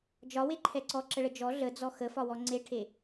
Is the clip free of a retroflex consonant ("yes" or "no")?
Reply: no